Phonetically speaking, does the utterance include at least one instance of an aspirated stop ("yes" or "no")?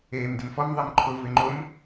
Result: yes